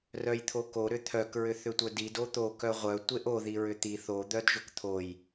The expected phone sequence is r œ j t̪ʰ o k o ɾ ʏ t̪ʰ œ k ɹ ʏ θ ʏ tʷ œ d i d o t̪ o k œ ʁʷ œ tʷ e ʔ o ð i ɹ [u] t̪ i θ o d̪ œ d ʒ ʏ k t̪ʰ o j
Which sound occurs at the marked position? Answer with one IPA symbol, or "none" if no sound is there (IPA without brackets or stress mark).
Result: ʏ